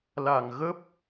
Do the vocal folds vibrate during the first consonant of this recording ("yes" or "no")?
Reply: yes